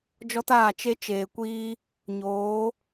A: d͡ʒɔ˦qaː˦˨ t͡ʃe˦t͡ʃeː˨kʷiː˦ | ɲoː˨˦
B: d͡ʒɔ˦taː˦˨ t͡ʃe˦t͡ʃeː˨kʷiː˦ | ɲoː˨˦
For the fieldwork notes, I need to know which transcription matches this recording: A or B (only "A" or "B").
B